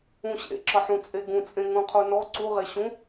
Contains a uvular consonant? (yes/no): yes